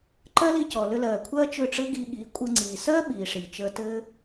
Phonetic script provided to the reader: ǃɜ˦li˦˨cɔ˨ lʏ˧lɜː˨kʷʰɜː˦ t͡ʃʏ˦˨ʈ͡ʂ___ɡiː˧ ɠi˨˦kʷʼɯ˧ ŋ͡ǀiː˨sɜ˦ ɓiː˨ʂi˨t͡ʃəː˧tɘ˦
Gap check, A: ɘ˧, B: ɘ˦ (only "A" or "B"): B